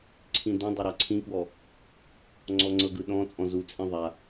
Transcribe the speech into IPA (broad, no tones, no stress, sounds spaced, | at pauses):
ǀʰ ĩ d õ dˤ ɤ ɾ a ǀʰ ĩ k w ɔ | ŋ͡ǀ ɔ ŋ͡ǀ ɤ ɡ ɯ ɗ ɔ̃ t͡sʼ ɔ̃ z u t͡sʼ ĩ ðˤ a